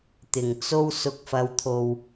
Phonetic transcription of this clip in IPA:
t̪ɪ˨˩ŋt͡so˧w sʊ˨k̚fɐ˨˧wt̪ʰo˨w

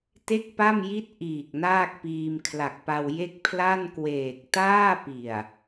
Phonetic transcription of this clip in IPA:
te˥˩k̚pa˥˩mji˥˩t̚ ʔiː˨˩k̚ naː˥˩k̚piː˧m kʰla˨˩k̚pa˧w je˥˩k̚ pʰla˥˩nkweː˨˩k̚ taː˥˩pi˨˩a̯

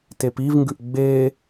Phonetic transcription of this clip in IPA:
tepivŋɡʉʔ ɡ͡be

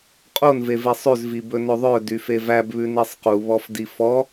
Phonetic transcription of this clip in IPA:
qʼonveve sˤʉzvi bɵnɵðˤœ dyfevæbβʉ nesˤquβɔf difɔ

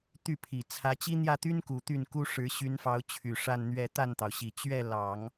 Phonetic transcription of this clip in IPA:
t̪y˥˩pʰi˨˩ t͡sʰä˧˥t͡ɕi˥ n̪jä˥˩t̪y˥nku˨˩ t̪y˥˩nku˥ ʂɻ̩˧˥ɕy˧˥nfɑ˧˥ʊ̯t͡ɕʰy˨˩ ʂa˥˧nn̪ɥɛ˥˧ t̪a˥˩nt̪ɑ˩ʊ̯ɕi˨˩ t͡ɕɥɛ˥˩lɑ˨˩˦ŋ

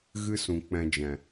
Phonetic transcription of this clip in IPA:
ɣɨ˦sũ˨k͡pɛ̃˧d͡ʒɛ̃˨

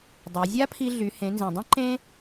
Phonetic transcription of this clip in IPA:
dˤø˩˧ zʲa˥pʰi˧ɮy˩˧ hẽ˩˧nzẽ˩dˤĩ˥ ǃẽ˥

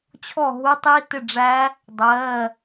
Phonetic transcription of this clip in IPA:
t͡ɕʰɔ˥˩ ɦu˦˥tˤi˧˥˧ tɪ˥˩ɖ͡ʐæ˦˥ | dˤɜː˧˥˧

